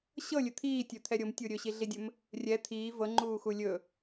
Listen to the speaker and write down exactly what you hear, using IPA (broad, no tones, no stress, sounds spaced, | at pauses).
ɕ ɤ lʲ ɵ t̪ʰ iː tʲ ɵ t̪ʰ ɛ ɾʲ o m tʲ u ɾʲ ɵ ɕ i ɮ i dʲ ɵ m | rʲ ɛ t̪ʰ iː v ɤ ŋ͡ǃ uː x u lʲ ɵ